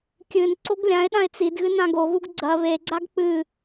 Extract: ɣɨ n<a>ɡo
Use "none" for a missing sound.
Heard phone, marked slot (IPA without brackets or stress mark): ã